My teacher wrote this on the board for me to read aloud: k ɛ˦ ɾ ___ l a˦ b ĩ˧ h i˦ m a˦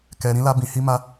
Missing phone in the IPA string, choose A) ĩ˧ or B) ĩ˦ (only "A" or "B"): B